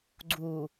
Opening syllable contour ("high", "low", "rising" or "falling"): low